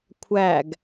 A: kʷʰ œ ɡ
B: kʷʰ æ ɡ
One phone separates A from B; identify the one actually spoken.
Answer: B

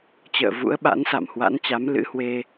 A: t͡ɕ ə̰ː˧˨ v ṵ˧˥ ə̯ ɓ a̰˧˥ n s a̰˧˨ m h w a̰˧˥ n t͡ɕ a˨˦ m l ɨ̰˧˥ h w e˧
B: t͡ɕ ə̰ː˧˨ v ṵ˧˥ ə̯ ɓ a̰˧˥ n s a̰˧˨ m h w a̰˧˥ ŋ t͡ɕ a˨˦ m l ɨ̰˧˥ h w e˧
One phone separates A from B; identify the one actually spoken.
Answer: A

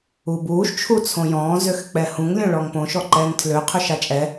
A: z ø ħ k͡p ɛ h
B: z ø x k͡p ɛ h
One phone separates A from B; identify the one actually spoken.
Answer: B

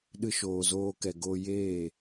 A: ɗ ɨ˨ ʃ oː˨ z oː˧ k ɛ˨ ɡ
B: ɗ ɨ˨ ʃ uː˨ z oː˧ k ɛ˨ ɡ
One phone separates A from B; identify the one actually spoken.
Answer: A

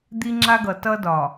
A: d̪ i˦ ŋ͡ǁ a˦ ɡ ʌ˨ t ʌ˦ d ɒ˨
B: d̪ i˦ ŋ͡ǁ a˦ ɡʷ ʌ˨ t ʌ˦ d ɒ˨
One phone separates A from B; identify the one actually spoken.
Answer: A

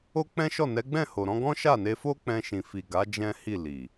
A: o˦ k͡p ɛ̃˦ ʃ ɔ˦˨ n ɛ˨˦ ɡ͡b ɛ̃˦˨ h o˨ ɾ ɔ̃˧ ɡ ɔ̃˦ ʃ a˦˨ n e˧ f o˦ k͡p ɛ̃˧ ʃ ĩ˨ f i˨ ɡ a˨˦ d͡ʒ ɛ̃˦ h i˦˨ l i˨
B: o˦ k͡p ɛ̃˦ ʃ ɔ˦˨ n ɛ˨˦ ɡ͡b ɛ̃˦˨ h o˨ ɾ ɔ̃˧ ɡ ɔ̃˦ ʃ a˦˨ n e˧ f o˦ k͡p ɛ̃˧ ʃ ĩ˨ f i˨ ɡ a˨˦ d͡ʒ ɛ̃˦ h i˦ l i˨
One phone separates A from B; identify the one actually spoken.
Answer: A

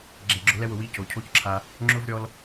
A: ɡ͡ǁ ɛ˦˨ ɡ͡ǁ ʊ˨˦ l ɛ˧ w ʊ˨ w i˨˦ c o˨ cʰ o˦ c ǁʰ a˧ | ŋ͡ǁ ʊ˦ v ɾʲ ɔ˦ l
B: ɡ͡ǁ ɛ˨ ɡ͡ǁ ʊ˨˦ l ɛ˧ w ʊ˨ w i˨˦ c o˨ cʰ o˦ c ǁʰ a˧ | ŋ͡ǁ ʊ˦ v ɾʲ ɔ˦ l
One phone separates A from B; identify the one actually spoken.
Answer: B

